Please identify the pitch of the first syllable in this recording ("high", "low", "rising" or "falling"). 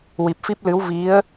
low